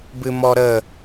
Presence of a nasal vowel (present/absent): absent